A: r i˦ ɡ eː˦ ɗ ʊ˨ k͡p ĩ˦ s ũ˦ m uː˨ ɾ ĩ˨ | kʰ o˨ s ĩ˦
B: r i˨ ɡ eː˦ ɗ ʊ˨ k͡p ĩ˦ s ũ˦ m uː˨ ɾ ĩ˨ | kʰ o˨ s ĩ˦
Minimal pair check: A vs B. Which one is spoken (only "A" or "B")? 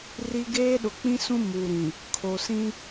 A